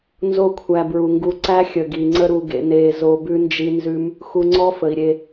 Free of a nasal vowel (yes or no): yes